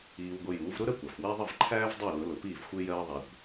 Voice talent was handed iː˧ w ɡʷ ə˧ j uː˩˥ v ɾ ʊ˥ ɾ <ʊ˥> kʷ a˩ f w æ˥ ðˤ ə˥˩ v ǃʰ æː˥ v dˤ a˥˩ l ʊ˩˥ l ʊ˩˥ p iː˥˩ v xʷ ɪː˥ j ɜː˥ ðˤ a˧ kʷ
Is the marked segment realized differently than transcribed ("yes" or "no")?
yes